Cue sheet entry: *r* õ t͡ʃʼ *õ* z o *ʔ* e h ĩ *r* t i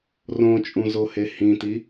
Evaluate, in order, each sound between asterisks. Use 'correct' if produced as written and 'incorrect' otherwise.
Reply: correct, incorrect: ũ, incorrect: h, incorrect: none

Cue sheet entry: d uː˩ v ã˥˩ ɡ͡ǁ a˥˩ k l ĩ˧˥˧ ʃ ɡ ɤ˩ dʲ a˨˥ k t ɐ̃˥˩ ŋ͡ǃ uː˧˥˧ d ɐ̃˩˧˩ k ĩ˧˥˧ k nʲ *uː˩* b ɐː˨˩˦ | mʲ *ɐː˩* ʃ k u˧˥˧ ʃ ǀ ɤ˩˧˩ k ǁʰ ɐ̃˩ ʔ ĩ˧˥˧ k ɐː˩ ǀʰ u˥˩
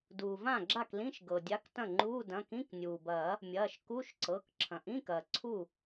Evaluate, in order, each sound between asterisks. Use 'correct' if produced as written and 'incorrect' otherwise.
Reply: correct, incorrect: ɐː˩˧˩

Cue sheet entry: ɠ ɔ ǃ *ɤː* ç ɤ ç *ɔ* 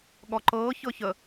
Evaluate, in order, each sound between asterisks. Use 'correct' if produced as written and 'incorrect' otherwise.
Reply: correct, incorrect: ə

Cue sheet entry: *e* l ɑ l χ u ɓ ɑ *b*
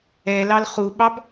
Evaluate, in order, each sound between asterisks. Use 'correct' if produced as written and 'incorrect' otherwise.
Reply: incorrect: ɛ, correct

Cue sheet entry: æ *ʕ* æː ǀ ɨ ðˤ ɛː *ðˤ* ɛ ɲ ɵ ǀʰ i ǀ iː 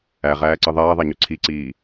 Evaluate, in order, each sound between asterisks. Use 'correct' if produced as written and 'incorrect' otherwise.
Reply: incorrect: ʁ, correct

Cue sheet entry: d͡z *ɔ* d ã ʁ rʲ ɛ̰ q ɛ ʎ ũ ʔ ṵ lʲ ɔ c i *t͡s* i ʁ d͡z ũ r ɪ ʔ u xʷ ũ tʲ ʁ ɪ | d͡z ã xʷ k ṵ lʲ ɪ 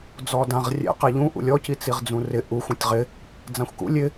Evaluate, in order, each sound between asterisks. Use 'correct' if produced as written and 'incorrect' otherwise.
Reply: correct, correct

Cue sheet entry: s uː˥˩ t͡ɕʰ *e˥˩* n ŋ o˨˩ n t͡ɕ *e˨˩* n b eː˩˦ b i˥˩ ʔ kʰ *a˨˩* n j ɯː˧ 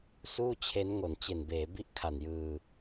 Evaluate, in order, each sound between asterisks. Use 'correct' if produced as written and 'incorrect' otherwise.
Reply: incorrect: e˦˥, correct, correct

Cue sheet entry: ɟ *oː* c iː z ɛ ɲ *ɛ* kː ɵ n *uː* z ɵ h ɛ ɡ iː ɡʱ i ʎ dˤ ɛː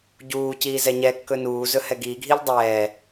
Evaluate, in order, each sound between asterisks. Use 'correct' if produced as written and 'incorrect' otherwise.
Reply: incorrect: uː, correct, correct

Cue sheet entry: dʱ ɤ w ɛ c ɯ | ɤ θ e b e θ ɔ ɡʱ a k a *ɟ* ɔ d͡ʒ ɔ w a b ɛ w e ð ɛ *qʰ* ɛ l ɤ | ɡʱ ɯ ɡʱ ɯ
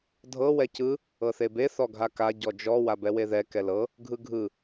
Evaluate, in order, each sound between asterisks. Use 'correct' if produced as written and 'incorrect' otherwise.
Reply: correct, incorrect: k

